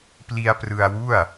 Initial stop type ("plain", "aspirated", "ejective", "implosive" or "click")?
plain